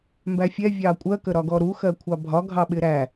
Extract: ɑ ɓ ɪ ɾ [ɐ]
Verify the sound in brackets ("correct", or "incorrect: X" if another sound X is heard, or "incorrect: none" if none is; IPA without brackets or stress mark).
incorrect: æ